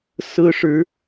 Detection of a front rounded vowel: absent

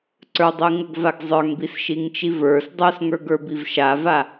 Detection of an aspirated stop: absent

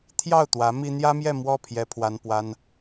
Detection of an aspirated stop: present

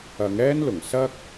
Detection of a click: absent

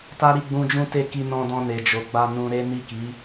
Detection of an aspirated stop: absent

